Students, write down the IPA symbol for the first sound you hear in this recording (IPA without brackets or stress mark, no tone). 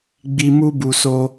ɡ͡b